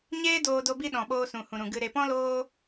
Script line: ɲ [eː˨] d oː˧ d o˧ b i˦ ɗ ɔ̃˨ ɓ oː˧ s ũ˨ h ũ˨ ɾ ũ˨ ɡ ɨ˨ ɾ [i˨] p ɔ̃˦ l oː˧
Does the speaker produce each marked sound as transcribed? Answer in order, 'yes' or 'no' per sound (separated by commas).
no, no